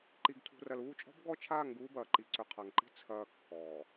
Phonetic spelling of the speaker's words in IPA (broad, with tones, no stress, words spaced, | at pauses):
ǃi˨ɡtʰṳ˨ rɐ˨luː˦˨t͡ʃʼɔ̤˦b ɡɔ˦t͡ʃʰaː˦˨ŋ ɡuː˦bɐː˨ǃi˨ ǀʏ˨ qʰa˨ŋǃi̤˦ t͡sʰɐː˨ kːɔː˨